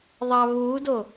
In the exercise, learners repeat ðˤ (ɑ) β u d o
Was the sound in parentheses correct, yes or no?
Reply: yes